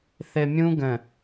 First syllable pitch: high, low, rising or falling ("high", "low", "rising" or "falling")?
low